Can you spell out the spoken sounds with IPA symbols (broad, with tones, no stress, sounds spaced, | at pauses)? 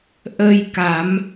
ʔ ə˧ j k a˨˩˦ m